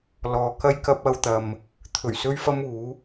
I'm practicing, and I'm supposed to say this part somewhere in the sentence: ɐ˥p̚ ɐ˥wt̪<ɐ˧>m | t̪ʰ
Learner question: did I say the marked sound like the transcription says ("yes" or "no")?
yes